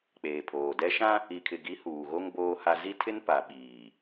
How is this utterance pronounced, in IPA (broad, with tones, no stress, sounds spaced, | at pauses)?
k͡p eː˨ pʰ oː˨ d ɛ˦ ʃ ã˦ | i˨ kʰ ɪ˨ ɡ i˨˦ h uː˨ ɣ o˦ ŋ b oː˦ h a˦ z i˦ tʰ ɪ˦ n p a˨ ɓ iː˨